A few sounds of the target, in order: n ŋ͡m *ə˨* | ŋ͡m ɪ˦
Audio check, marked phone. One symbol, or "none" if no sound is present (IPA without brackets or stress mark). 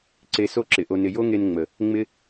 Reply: ə˨